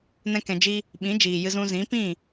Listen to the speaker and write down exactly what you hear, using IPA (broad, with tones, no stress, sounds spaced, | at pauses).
n ɛ̃˦ k ɛ̃˧ d͡ʒ i˦ | ɓ ĩ˨˦ d͡ʒ iː˨ j ɨ˧ z ũ˧ z ĩ˨˦ p ĩ˦˨